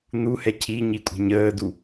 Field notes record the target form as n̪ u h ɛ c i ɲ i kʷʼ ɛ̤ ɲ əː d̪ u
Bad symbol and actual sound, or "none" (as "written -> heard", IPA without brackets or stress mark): c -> cʰ